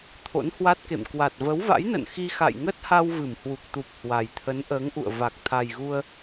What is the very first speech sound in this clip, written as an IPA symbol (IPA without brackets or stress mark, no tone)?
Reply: t̪ʰ